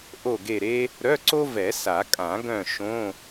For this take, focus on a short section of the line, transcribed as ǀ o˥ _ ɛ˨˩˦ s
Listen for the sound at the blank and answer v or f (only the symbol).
v